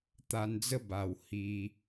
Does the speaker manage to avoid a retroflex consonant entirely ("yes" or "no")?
yes